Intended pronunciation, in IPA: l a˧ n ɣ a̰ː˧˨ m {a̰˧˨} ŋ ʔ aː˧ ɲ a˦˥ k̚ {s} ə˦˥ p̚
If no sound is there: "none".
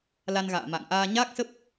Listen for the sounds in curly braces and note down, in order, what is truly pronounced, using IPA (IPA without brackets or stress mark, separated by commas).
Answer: a̰˧˨, s